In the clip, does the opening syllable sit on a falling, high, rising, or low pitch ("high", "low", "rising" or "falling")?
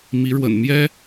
rising